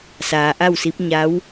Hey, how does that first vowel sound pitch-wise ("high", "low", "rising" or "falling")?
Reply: low